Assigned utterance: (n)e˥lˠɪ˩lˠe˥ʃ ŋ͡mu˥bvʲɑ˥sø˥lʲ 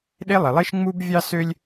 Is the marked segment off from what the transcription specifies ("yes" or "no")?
yes